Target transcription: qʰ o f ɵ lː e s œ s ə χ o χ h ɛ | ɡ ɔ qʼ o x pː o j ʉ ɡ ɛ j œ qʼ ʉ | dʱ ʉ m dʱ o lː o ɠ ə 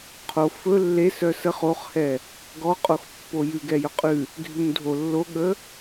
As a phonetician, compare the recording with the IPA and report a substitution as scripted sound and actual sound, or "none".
none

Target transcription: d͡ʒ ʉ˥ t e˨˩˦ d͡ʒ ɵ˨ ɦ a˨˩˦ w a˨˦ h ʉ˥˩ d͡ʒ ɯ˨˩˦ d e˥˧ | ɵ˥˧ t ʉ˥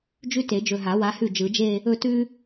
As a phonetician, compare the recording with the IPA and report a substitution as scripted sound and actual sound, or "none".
d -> d͡ʒ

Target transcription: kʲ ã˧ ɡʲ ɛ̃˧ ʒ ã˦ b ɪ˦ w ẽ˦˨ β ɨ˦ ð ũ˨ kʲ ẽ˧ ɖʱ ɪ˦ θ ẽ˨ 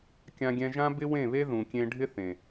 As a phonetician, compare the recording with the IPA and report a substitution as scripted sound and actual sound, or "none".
ɨ˦ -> e˦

